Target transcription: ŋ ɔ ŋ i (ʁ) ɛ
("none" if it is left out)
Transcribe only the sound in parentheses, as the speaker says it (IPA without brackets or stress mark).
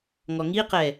q